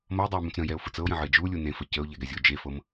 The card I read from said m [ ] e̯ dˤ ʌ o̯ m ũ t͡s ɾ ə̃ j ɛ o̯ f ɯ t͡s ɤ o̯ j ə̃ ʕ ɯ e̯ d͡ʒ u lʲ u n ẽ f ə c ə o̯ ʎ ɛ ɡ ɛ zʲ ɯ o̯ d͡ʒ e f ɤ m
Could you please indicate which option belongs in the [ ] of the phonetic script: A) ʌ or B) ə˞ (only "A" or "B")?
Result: A